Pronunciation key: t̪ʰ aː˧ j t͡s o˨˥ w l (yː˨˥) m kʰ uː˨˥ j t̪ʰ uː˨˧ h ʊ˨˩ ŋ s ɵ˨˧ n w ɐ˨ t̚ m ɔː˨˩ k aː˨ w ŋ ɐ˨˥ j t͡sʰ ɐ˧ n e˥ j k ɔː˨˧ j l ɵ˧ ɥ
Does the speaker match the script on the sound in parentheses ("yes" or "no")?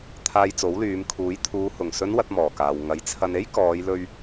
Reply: no